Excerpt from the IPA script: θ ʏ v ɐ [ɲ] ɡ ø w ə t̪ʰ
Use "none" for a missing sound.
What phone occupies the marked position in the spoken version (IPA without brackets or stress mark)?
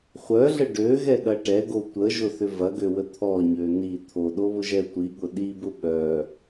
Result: none